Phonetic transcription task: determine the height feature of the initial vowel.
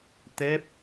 mid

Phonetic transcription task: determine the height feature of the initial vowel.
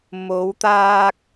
mid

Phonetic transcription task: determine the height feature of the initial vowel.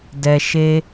mid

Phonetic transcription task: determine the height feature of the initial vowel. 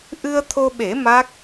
high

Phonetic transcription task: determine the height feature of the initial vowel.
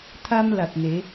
low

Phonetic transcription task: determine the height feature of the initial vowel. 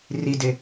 high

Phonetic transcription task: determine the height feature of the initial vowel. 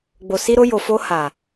mid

